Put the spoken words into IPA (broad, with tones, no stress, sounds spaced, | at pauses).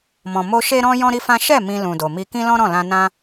m ɔ̃˨ m o˧ ʃ e˦ ɾ ɔ̃˦ j ɔ̃˦ ɾ i˦ f ã˦ ʃ ɛ˦˨ m ĩ˧ l ũ˨ d o˨ m i˧ k ĩ˦ l ɔ̃˦ ɾ ɔ̃˦˨ l ã˧ n ã˦